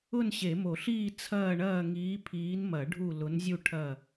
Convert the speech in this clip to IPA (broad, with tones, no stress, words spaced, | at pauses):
ʊ˦˨nɕe˨˩˦mo˨˩˦ɬiː˦˨ t͡sʰɐː˦˨ɳɐː˦˨ ŋiː˨˦pʰiː˨˦nmɐ˨˩˦ ɖʱu˦˨ lʊ˨˦nzʲu˦˨ ʈʰɐ˦˨